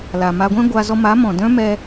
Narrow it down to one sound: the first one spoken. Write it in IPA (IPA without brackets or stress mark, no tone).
l